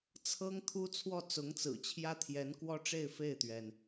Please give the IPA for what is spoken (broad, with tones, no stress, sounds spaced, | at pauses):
t͡sʰ ɤ˥ ŋ t̪ʰ u˥ t͡sʰ w ɔ˥˩ t͡s ʊ˧˥ ŋ t͡s ɹ̩˨˩ t͡ɕʰ j ä˥ t̪ʰ j ɛ˧˥ n k w ɔ˥ ʈ͡ʂ e˥˧ ɪ̯ f e˥˩ ɪ̯ t̪ ɥ ɛ˩ n